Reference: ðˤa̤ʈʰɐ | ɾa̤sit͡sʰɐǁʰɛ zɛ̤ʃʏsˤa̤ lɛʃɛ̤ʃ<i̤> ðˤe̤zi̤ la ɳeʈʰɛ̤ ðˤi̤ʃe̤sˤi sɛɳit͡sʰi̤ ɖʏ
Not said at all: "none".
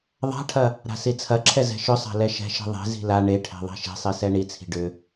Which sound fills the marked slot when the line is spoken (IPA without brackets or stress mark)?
i̤